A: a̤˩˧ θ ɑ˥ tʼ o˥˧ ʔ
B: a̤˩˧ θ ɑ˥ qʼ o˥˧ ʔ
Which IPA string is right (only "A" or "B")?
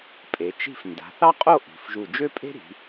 B